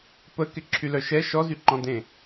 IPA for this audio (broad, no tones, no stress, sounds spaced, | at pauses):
p ə k ɪ ǁʰ y l œ ʃ ɛ ʃ ɔ z y ǃ ɔ̃ d ẽ